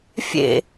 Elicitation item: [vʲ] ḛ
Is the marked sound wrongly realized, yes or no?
yes